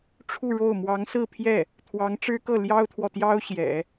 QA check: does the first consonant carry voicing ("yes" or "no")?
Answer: no